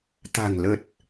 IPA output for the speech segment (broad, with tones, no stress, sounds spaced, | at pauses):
t̪ a̤˨˩ ŋ l ə˨˩ t̚